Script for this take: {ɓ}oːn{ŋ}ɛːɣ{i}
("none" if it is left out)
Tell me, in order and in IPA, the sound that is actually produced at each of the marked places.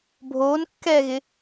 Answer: bʱ, kː, ɪ

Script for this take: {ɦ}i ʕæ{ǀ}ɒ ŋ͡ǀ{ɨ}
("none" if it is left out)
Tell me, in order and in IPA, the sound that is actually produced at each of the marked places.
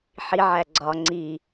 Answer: ħ, ɡ͡ǀ, i

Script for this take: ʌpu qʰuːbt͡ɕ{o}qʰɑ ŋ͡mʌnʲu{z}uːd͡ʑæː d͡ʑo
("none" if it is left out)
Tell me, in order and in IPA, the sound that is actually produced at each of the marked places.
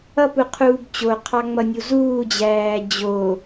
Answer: o, z

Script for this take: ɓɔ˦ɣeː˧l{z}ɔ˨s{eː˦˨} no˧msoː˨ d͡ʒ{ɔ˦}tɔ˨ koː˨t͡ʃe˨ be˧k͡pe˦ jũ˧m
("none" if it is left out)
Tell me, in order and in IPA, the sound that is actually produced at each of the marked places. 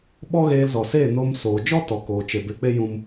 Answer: z, eː˦˨, ɔ˦

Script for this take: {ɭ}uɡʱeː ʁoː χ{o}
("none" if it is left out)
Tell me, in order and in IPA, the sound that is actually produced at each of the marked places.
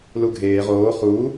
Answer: l, u

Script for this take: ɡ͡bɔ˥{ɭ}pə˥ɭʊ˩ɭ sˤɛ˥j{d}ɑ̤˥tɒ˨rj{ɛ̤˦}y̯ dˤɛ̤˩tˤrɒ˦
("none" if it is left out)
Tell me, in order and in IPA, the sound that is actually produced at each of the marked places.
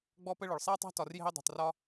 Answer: none, tˤ, ɛ̤˦

